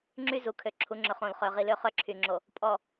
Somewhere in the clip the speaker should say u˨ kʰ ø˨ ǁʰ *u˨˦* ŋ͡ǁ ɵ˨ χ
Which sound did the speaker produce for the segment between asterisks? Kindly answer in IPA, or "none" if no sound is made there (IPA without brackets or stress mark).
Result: u˨˦